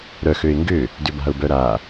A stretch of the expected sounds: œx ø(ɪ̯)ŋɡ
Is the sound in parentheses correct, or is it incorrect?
correct